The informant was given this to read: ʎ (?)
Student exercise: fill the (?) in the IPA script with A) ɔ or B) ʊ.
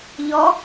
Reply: A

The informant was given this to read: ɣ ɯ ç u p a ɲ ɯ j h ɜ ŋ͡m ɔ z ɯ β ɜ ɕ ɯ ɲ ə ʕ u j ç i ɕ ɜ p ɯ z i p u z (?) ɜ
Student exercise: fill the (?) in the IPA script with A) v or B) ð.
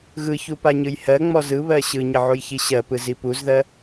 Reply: B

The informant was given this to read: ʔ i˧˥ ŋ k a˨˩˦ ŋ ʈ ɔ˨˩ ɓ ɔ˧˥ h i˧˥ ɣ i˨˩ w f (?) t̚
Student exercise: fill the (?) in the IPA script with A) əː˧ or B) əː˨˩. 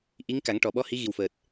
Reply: B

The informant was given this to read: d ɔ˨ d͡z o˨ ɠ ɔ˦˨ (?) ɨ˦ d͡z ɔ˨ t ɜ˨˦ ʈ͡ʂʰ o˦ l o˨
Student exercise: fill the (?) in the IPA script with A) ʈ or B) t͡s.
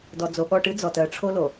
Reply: A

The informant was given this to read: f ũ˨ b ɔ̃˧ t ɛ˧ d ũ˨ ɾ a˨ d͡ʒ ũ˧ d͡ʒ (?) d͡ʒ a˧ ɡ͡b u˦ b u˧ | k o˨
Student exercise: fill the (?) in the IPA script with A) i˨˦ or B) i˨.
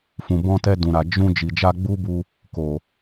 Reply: B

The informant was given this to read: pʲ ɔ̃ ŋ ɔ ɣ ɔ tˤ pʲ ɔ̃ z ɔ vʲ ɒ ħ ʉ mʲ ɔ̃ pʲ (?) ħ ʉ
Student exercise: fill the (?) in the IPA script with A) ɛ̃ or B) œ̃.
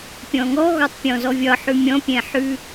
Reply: A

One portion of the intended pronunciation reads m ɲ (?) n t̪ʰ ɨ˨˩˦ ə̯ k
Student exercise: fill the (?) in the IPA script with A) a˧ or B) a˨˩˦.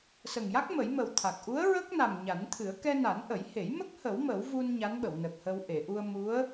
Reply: B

